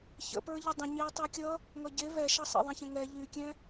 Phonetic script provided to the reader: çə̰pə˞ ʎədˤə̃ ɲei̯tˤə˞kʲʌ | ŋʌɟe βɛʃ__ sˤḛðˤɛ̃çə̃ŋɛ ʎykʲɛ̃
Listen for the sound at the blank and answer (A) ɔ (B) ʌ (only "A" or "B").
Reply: B